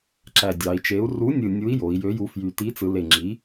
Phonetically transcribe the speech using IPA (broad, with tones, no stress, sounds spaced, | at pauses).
ǁ æ˨˩ dʲ ɑ˩˧ i̯ t͡ʃ e˨˥ u̯ r u˨˥ nʲ ɯ˨˩ nʲ u˨˥ i̯ j o˩˧ i̯ j ø˨˥ j u˨˥ f j y˨˩ t i˨˥ t͡s ɯ˩˧ l e˨˩ ŋ͡ǁ i˨˥